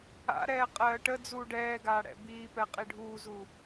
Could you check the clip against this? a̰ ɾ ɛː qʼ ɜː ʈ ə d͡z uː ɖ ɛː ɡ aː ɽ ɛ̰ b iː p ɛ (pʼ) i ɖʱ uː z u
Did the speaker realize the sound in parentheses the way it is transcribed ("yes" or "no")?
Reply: no